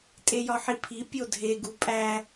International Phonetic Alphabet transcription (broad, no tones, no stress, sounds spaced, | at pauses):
tʼ e j ɒ ħ i pʰ i pʲ o dʱ e ɡ u pʼ æ